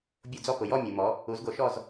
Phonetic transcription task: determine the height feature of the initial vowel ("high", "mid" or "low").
mid